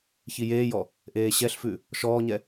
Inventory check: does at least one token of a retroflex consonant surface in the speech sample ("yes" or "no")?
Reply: no